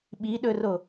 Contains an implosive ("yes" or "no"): yes